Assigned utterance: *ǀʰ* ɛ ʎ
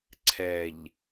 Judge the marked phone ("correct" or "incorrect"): correct